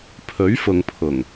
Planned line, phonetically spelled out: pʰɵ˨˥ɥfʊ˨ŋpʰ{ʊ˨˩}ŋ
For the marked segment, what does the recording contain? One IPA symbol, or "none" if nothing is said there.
ʊ˨˩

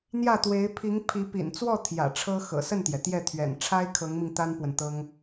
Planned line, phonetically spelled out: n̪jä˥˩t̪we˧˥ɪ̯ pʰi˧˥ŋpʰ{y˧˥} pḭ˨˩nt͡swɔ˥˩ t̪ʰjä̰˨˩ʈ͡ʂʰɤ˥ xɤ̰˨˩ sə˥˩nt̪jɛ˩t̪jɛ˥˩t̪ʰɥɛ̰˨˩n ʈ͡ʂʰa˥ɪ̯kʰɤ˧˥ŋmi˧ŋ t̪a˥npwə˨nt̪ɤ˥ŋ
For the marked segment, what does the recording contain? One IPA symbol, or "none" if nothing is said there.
i˧˥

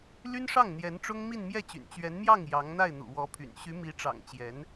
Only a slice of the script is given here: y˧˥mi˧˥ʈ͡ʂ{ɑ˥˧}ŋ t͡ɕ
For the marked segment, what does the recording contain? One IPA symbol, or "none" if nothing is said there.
ɑ̰˨˩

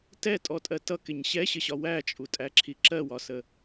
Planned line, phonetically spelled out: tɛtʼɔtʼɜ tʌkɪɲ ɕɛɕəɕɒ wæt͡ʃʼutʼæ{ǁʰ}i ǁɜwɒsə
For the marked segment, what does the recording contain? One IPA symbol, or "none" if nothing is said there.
ǁʰ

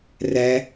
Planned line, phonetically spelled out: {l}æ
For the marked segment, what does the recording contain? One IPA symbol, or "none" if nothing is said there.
r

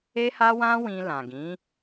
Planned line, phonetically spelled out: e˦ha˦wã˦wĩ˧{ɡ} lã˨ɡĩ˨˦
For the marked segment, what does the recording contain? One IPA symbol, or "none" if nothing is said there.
none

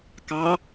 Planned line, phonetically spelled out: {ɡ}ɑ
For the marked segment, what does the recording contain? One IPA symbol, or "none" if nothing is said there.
k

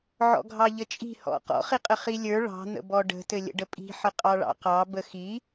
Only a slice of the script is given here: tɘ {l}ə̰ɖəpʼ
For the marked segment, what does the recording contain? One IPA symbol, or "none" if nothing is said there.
lʲ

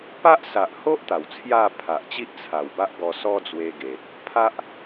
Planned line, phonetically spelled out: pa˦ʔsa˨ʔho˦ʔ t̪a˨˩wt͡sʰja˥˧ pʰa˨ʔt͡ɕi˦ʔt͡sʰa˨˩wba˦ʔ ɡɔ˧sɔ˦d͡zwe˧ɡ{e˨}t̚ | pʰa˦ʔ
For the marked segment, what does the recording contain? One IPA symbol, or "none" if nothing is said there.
e˨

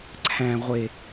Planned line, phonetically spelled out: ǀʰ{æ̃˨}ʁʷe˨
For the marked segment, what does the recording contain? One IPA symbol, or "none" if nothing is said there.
æ̃˨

